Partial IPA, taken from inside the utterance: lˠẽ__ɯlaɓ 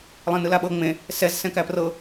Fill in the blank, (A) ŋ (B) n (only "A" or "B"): B